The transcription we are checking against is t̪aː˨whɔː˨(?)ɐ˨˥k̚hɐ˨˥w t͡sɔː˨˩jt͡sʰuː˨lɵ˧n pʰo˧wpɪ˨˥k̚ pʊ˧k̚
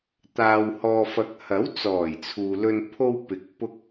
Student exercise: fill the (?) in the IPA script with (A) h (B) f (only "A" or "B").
B